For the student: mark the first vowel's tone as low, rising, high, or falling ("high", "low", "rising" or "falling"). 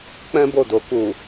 high